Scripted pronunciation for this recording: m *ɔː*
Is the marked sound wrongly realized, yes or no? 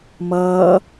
yes